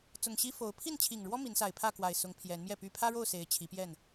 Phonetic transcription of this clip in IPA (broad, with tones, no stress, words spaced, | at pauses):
t͡sʊ˨˩ŋɕi˦fo˨˦ʊ̯ pʰi˥˨nt͡ɕʰi˨˩ŋɻwɔ˦ mi˨˦nsa˨˩ɪ̯pʰä˥˨ kwa˨˩ɪ̯sʊ˨˦ŋ pʰjɛ˨˦nmjɛ˥˨py˦ pʰä˦ɻo˥˨ʊ̯ se˨˦ɪ̯t͡ɕʰi˨˦pjɛ˥˨n